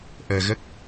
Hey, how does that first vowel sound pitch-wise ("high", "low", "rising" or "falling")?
low